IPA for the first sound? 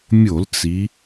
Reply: mʲ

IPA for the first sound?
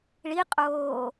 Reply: ɭ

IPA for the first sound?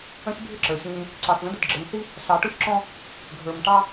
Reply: ə̃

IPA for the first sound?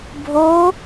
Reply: bʱ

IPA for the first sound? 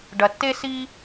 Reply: ɖ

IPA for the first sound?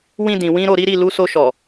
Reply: w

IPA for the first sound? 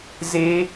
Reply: z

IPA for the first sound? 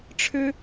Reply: ʈ͡ʂʰ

